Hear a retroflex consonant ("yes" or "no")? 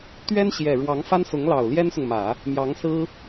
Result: yes